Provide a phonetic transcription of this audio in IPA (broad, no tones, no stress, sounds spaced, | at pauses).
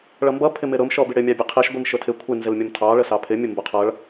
ɭ ʌ m b ʌ pʰ ɪ m ɪ ɾ ʊ m ʃ ɔ b i ɽ ɪ mʲ ɑ bʲ ʊ qʰ i ʃ ɡʷ i m ʃ ʊ tʰ ɪ kʷʰ ɪ n z ɪ l mʲ ʌ m tʰ ɑ ɭ ə s ɑ pʰ ɪ mʲ ʊ m b ʊ qʰ ʌ ɭ